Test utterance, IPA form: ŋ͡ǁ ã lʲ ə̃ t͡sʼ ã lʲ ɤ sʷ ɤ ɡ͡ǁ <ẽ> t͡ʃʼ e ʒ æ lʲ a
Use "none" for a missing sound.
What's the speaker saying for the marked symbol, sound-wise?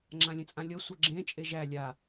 ẽ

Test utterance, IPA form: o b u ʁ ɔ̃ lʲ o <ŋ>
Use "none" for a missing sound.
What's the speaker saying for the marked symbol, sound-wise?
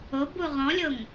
ŋ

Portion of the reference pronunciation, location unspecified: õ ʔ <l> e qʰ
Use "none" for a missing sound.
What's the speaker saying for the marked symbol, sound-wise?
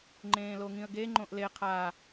l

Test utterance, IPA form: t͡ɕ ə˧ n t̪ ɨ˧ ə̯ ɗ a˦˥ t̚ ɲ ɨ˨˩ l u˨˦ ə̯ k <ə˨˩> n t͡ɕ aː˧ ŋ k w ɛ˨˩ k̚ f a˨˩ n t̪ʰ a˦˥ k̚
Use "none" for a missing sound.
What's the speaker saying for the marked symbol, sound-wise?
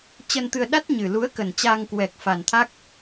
ə˨˩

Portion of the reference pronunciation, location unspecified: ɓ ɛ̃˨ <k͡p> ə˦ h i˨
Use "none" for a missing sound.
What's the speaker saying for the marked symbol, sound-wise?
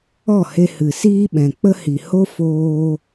k͡p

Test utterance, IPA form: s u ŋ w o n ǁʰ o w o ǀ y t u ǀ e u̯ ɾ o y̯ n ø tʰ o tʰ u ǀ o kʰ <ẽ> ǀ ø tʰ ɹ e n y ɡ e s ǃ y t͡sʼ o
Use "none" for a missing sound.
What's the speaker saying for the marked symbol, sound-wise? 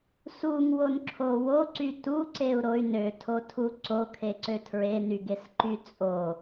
e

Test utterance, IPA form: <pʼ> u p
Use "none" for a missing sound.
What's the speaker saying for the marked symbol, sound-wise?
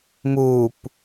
m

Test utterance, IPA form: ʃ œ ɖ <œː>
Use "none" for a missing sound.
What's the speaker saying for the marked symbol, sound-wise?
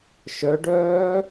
œː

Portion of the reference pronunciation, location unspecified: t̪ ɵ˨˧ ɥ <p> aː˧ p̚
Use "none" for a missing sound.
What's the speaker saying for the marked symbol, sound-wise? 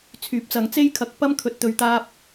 t̪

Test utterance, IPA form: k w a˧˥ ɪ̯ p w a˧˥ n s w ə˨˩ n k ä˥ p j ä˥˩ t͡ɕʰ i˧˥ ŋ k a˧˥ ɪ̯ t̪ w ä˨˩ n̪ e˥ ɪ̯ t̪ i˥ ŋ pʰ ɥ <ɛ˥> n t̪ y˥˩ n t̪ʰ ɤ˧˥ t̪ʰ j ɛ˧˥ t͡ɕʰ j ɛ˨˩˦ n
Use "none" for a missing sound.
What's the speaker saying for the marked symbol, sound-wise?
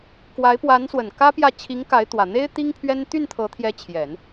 ɛ˥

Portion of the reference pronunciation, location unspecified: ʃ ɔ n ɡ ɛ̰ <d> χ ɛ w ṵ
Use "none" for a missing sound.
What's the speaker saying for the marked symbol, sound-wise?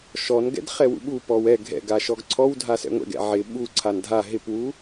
d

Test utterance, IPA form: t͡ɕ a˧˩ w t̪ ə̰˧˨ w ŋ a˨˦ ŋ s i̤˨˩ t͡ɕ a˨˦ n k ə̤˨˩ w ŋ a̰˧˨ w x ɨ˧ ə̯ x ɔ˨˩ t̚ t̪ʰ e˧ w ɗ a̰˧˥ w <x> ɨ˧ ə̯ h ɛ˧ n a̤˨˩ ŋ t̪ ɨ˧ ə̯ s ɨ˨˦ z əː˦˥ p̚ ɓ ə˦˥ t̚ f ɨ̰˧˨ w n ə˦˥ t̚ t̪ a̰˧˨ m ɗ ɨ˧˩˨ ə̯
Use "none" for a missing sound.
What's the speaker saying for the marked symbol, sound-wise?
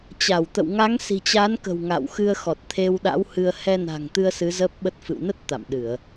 h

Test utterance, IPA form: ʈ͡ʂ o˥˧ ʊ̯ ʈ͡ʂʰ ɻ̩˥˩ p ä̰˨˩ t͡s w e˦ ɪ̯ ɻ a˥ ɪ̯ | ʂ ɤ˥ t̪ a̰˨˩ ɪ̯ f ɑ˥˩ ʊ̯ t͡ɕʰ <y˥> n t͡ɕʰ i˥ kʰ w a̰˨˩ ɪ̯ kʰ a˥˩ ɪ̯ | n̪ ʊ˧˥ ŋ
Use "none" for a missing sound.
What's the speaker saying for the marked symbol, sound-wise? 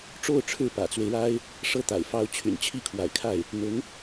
y̰˨˩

